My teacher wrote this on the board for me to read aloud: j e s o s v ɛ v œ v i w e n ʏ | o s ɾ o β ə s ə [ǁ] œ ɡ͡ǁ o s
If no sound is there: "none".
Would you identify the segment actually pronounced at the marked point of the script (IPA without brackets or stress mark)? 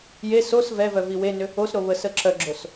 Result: ǁ